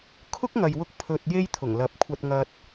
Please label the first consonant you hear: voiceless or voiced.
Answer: voiceless